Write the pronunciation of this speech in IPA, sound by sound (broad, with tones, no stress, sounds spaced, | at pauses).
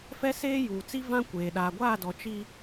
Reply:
f ɛ˦ s eː˦ j uː˨ t͡s i˦ v ã˦ kʷ eː˨ ɗ aː˨ ɡʷ aː˦˨ d ɔ˨ t͡ʃ i˦